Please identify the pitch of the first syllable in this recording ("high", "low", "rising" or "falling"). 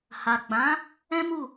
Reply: low